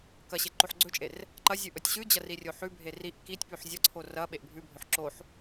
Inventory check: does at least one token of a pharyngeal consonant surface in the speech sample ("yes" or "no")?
yes